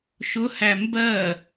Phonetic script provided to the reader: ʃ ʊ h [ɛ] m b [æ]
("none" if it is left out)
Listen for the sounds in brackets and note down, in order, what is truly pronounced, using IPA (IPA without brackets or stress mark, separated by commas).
æ, ɜ